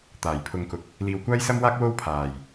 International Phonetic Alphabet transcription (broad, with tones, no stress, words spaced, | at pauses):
t̪aː˨˩jpʰʊ˨˧ŋkʊ˨k̚ | liː˧w kʷaː˥jsɐ˥mwaː˥k̚ wo˥w pʰaː˨˩j